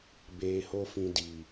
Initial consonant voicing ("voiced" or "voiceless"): voiced